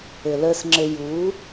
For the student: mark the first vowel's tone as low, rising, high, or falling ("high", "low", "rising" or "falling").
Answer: low